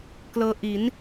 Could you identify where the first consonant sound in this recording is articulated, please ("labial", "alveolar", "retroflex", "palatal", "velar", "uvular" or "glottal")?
velar